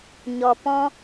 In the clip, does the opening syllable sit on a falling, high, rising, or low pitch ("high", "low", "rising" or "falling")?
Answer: low